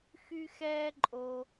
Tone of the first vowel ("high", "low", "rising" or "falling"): high